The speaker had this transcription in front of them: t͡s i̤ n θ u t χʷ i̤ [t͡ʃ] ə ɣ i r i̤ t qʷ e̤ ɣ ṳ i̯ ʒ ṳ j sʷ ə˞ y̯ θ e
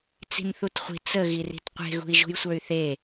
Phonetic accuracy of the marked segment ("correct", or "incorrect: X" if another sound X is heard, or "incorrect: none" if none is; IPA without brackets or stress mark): incorrect: t͡s